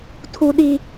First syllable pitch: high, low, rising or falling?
high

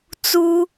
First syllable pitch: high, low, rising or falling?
high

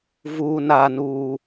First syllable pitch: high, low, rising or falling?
low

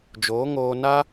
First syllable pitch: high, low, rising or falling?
rising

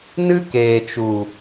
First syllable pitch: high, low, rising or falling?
high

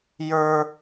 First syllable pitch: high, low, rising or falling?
high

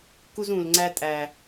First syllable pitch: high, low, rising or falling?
high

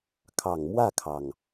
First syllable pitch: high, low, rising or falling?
low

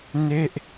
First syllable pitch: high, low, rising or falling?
falling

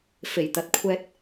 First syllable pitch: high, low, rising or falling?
low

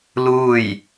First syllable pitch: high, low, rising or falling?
falling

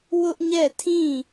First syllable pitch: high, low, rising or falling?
high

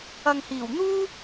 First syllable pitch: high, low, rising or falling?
low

